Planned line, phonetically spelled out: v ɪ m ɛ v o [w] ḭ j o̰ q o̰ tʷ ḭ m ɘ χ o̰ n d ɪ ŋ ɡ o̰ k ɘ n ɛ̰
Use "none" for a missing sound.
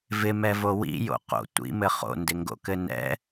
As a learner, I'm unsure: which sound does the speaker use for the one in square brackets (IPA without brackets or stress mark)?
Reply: w